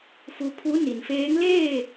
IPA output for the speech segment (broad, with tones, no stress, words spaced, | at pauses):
fu˧pʰu˧˥ ni˩nfeː˧˥ŋ leː˥˨